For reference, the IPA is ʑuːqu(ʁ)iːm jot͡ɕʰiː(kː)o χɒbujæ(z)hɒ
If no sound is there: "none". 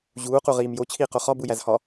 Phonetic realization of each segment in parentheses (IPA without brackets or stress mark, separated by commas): ʁ, q, z